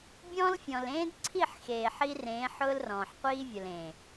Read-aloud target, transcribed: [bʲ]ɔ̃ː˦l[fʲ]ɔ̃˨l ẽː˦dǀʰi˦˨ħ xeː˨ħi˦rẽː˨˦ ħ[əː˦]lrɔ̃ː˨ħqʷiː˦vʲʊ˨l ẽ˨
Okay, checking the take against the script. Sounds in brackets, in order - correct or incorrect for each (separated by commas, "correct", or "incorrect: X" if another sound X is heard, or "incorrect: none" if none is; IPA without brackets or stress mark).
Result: correct, correct, incorrect: ʊː˦